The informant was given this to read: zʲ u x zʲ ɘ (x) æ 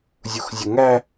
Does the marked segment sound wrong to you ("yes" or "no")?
yes